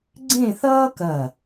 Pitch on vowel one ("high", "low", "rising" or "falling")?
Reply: falling